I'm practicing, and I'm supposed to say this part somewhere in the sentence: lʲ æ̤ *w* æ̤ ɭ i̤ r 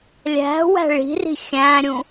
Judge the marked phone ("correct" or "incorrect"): correct